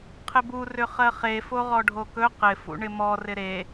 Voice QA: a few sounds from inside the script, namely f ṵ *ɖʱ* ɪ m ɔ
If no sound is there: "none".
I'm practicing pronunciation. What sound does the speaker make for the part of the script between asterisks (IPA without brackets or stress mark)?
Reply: ɳ